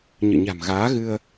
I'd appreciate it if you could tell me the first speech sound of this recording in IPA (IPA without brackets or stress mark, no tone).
ɲ